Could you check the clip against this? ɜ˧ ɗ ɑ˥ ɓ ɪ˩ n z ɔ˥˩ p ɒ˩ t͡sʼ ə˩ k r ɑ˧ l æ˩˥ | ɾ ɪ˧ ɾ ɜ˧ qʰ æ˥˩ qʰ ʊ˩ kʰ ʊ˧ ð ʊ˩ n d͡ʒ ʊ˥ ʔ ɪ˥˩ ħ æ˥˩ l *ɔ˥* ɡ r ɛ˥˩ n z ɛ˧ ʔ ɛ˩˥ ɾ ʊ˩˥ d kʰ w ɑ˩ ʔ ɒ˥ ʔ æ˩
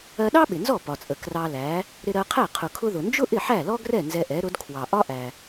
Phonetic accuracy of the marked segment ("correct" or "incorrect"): correct